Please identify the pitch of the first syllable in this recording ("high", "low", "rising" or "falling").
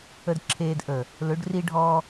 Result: high